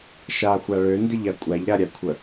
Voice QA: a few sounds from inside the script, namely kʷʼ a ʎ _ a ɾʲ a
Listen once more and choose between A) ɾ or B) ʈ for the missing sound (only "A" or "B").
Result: A